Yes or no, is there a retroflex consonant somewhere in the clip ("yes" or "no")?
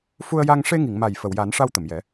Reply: yes